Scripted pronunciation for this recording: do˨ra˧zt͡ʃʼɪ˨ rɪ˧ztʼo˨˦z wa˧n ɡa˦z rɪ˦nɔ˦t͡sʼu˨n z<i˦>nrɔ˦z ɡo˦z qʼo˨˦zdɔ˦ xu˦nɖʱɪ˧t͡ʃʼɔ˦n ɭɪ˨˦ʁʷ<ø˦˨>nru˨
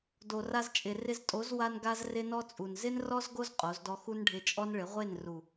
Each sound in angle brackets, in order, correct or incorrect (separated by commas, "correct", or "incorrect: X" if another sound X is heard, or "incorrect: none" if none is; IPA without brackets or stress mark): incorrect: ɪ˦, incorrect: e˦˨